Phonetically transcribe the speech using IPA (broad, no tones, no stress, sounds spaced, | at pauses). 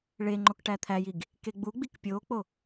ɭ e ŋ͡ǃ o k ʈ æ t̪ʰ æ j i ɡ | k e ɡ͡b u ɡ͡b i k pʲ o k͡p o